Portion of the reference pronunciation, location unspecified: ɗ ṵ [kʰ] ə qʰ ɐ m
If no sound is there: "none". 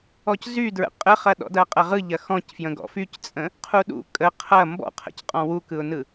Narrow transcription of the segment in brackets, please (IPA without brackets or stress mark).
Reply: kʼ